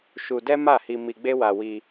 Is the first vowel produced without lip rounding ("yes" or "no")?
no